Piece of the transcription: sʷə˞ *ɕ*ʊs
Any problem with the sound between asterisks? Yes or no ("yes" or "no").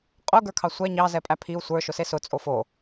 yes